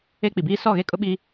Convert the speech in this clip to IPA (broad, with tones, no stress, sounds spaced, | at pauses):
e˦ k͡p i˨ b iː˦ s ɔ˦˨ ɣ e˦ kʼ ʊ˦ ɓ i˦